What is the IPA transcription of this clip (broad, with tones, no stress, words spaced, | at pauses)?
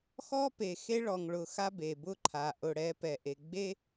xɔ˦ pe˨ xe˦ɭɔ˨ŋɭʊ˨ xa˦be˨bʊ˦ǃʰa˨ ʔʊ˨ɽɛ˨˦ pɛ˨ʔe˨ɡ͡be˦